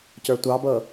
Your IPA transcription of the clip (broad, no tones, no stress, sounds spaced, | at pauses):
c ə˞ tʷ ɑ b ɤ